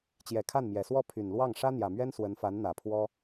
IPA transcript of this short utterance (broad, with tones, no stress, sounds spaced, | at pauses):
t͡ɕ j ɛ˨˩ kʰ a˥˩ n m j ɛ˨˩ s w ɔ˥˩ pʰ y˨˩ n l w ɑ˥˩ ŋ ʂ ä˥ n̪ j ä˨˩ m ɥ ɛ˥ n s w ə˧˥ n f a˧˥ n n̪ ä˨˩ pʰ w ɔ˥